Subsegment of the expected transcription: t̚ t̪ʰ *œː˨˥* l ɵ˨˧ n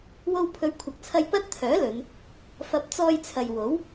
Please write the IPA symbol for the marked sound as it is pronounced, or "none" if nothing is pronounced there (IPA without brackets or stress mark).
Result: œː˨˥